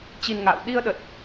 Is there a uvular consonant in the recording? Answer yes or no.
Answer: no